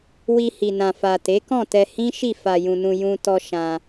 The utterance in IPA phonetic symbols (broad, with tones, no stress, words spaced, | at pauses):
wi˧hi˨ nã˨fa˨ te˨˦kɔ̃˦˨tɛ˧ hĩ˦ʃi˦˨ fa˨jũ˨nũ˨ jũ˧ tɔ˧ ʃã˧